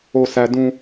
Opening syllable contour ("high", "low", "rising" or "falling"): low